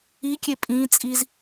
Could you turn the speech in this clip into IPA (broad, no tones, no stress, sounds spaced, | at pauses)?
i kʲ e pʼ ĩ t͡sʼ i z